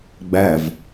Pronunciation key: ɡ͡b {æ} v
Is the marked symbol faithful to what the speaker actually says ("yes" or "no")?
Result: yes